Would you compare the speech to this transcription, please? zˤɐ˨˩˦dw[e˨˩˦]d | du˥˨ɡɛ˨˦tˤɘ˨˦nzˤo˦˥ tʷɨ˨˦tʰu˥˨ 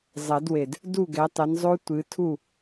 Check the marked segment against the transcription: incorrect: e˨˩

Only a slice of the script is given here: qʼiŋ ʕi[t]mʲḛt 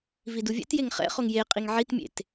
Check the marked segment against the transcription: correct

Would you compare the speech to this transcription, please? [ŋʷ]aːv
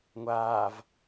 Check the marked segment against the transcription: correct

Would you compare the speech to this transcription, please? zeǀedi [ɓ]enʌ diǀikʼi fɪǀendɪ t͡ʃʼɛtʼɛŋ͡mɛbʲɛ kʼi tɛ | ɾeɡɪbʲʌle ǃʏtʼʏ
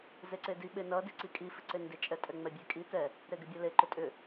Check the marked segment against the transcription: correct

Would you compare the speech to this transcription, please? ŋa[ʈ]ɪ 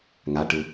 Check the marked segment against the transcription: correct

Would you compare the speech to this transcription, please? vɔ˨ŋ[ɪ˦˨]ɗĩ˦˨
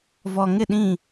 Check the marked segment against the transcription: correct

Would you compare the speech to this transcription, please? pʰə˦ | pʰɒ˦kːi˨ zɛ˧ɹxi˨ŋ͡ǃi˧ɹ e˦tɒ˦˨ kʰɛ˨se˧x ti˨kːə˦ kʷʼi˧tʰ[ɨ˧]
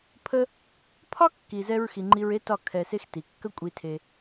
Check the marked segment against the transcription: incorrect: e˧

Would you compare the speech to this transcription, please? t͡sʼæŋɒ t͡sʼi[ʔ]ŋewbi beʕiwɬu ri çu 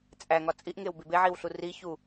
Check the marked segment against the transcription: correct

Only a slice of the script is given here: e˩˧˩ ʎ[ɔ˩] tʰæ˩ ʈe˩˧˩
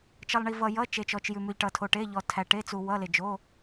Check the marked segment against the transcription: correct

